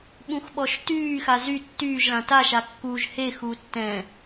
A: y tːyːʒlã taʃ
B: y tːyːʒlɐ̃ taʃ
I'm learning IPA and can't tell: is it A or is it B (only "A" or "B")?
A